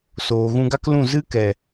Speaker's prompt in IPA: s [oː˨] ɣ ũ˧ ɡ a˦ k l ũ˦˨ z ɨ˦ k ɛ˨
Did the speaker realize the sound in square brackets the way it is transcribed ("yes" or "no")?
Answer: yes